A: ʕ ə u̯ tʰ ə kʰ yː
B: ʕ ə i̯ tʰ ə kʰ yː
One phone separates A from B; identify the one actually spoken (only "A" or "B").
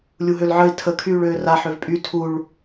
B